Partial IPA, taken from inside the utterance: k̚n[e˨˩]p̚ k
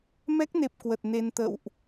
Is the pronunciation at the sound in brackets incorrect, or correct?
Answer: correct